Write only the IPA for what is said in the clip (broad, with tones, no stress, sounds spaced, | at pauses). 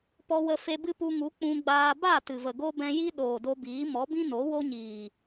p ɔ˧ w ə˧ f e˧ b ɨ˦ p u˧ ŋ u˨˦ k͡p ũ˧ ɡ͡b aː˧ b a˦˨ t ɨ˨ v ə˨ ɡ o˦ b ɛ̃˦ j i˦ ɗ oː˨ d o˧ b iː˨˦ m ɔ˨˦ b ĩ˦ n o˨˦ w o˦ ɲ iː˨